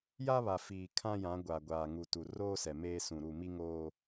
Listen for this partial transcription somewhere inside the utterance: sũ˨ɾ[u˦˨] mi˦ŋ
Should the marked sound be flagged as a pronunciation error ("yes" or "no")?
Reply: no